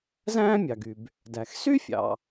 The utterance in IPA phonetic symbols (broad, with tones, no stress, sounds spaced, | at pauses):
z æ̃ː˥ mʲ ɑ˩ ɡ y˩ b | d æ˩ x s y˥ fʲ ɑ̰˩